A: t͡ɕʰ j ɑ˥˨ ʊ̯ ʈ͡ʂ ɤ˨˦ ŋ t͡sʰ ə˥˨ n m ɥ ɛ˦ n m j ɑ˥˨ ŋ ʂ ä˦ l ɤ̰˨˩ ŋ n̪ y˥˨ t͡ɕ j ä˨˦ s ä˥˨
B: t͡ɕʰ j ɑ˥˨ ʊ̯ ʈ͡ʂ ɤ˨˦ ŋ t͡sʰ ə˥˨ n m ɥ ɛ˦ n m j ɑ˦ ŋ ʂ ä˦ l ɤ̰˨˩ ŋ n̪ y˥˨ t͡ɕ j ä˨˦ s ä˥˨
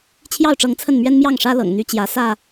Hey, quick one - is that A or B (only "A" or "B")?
A